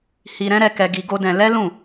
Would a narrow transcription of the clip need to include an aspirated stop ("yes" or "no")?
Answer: no